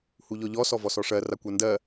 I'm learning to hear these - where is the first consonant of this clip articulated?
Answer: throat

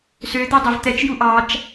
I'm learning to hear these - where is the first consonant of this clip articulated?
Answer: tongue tip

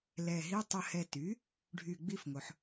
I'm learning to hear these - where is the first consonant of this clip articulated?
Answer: tongue tip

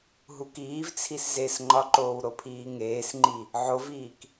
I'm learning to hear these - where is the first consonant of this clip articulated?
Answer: throat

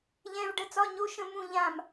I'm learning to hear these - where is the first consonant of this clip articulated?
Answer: palate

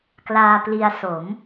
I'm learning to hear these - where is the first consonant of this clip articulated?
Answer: velum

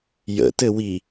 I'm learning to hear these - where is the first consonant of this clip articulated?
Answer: palate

